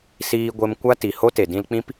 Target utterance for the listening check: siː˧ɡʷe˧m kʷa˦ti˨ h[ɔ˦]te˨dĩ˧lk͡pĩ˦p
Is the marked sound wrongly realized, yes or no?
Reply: yes